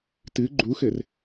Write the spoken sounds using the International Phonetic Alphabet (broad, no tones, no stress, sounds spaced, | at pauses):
t ɨ ɡ͡ǃ u x ɘ r